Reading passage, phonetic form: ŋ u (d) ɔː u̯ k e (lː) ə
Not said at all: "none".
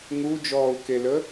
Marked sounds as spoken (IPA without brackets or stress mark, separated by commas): d͡ʒ, l